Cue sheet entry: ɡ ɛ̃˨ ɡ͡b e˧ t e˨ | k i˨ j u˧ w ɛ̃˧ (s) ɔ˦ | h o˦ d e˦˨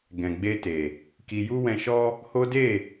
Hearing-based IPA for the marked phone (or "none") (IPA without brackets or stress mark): ʃ